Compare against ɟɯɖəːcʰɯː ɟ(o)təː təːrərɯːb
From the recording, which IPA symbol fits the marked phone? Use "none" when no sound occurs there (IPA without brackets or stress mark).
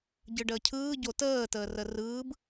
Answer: o